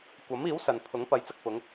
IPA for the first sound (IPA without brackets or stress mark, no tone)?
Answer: kʷ